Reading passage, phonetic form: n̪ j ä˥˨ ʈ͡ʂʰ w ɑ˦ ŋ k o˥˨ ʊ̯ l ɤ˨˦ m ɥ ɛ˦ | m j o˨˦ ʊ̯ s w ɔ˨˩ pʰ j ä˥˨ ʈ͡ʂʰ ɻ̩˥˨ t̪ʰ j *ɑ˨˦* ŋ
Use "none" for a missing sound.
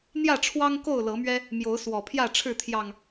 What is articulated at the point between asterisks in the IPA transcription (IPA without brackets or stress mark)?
ɑ˨˩